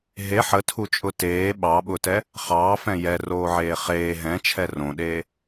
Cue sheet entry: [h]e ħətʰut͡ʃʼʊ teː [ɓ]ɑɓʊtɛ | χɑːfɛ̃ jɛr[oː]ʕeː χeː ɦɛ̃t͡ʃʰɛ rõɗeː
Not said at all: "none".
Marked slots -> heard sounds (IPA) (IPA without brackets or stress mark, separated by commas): ɦ, ɓ, oː